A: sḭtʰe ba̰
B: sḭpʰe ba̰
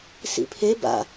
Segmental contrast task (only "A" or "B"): B